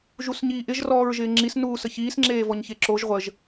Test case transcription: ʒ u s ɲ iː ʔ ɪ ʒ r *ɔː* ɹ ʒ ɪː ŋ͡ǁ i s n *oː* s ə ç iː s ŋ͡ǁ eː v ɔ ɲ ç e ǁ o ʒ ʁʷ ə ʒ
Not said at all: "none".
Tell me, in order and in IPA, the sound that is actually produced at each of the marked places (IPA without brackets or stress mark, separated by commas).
ɔː, uː